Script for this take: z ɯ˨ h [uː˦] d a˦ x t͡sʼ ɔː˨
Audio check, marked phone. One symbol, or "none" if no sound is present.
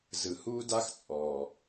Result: uː˦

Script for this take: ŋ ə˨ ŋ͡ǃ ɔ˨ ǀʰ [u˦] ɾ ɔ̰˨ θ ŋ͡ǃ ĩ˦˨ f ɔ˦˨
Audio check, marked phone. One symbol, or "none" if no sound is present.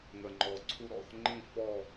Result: u˧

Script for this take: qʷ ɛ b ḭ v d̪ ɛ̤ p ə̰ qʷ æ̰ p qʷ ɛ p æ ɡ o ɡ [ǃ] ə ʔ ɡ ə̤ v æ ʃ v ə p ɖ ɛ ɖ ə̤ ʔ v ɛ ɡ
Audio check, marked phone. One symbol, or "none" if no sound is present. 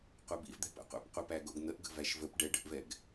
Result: n̪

